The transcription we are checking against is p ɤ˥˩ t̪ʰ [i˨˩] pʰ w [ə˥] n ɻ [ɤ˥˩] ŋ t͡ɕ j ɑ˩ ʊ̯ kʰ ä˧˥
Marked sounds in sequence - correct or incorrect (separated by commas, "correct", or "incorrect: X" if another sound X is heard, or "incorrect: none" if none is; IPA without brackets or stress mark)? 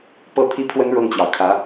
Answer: incorrect: i˥, correct, correct